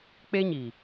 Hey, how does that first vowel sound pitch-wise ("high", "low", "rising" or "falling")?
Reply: high